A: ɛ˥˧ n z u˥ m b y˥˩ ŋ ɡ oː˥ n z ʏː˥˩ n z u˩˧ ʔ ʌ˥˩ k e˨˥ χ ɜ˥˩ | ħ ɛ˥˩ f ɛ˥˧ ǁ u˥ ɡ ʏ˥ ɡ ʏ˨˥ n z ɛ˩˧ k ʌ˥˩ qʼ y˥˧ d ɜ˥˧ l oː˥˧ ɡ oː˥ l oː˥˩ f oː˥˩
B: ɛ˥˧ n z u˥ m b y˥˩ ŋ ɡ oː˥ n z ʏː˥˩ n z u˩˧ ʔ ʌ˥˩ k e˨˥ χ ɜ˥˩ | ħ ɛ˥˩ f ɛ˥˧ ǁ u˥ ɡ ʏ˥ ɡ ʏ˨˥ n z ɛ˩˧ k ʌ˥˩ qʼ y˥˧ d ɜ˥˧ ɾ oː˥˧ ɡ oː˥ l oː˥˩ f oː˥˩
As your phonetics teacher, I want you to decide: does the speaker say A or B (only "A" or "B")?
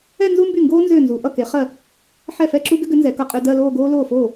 A